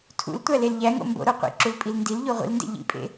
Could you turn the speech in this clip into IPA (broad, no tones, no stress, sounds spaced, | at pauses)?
tʰ ṵ l tʷ æ l e l ʎ æ ŋ o̰ m b o̰ ɾ o qʷ ḭ ǁ u l pʼ i l n d i l ʎ o ʁʷ ḭ l n d ḛ ʎ ḭ pʼ ḛ